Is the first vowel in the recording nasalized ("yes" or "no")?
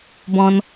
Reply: yes